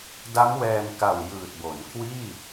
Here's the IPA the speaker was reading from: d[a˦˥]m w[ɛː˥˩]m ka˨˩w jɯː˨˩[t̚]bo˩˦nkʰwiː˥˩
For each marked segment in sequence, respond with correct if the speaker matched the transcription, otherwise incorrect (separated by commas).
correct, incorrect, correct